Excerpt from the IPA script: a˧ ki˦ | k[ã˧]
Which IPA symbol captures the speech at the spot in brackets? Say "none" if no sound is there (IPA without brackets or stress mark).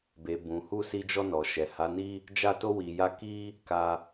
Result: a˧